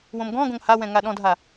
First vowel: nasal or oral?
nasal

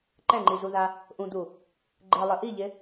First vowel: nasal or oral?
nasal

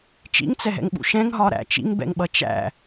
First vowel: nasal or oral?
oral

